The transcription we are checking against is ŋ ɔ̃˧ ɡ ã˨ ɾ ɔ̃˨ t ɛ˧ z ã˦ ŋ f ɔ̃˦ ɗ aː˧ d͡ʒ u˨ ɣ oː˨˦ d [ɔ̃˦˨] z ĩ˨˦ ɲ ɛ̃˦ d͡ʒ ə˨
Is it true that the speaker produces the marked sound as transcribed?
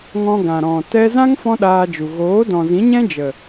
no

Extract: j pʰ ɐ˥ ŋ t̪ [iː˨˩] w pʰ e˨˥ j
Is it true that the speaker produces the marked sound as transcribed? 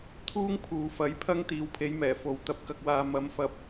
no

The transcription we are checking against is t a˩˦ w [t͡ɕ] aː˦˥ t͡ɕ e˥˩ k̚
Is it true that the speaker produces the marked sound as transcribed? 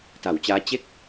yes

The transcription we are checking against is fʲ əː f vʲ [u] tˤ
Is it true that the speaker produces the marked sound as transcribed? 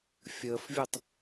yes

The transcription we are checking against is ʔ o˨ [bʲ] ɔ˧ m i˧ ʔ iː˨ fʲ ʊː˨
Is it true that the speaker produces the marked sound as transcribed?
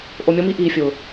no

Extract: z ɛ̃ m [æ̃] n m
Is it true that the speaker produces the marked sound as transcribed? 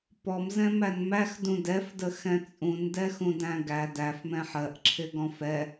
no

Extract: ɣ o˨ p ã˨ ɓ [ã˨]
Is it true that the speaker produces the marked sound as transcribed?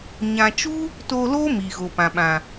yes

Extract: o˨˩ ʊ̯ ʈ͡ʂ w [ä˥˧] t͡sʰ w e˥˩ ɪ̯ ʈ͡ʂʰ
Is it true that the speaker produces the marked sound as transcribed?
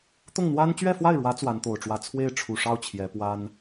yes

